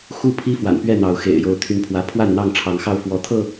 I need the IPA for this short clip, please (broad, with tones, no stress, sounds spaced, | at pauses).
x u˥˨ pʰ i˦ f w a̰˨˩ n p ɥ ɛ˥˨ n̪ ɑ˨˦ ʊ̯ x ḛ˨˩ ɪ̯ j o˨˦ ʊ̯ t̪ʰ y˦ n pʰ w ä˦ pʰ w a˥˨ n n̪ ɑ˥˨ ŋ ʈ͡ʂʰ ɑ˨˦ ŋ x ɑ˥˨ ʊ̯ f w ɔ˦ t̪ʰ ɤ˥˨